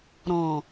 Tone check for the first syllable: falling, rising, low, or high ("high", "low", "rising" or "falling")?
low